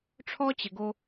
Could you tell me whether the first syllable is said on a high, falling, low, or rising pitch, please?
high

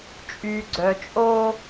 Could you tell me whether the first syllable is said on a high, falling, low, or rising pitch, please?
low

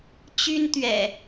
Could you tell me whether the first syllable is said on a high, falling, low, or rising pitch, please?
high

